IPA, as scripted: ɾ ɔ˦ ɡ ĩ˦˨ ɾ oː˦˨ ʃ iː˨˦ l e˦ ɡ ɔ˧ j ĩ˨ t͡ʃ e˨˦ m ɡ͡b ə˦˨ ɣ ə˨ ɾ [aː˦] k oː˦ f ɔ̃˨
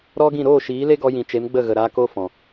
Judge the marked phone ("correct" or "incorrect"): incorrect